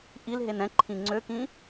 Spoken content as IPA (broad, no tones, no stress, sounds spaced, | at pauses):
ʔ i l ɦ e n ɛ̃ ǃʰ ĩ ŋ͡ǀ ø k ĩ